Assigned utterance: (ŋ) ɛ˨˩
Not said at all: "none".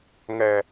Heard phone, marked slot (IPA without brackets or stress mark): ŋ